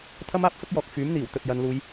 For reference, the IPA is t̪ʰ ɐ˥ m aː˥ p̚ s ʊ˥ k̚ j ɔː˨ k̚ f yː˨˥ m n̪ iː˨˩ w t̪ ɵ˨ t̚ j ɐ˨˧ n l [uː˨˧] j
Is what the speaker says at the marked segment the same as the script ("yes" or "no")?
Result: yes